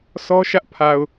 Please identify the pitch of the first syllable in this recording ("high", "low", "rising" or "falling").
high